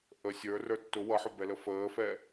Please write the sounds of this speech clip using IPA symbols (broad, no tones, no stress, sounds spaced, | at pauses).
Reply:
ʔ ə sʲ ə˞ r ə˞ tː ʊ w ʌ ħ ʊ b ɛ l ə f əː f ɛ